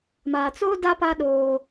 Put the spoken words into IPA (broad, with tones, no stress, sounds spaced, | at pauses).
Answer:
m a˨ t͡s o˦ d a˦ p a˦ ɗ oː˦